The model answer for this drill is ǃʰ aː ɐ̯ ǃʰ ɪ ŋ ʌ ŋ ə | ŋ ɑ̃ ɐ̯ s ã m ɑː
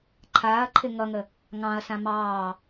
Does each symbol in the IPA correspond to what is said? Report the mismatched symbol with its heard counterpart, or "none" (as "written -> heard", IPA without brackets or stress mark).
none